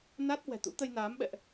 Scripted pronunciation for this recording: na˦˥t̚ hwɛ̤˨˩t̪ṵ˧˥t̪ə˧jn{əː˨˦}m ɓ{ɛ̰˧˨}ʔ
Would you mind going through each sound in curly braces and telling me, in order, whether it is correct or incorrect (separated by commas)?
incorrect, correct